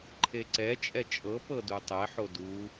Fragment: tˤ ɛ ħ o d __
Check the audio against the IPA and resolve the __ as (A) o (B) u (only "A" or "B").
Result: B